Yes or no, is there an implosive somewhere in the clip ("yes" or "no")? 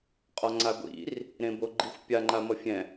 no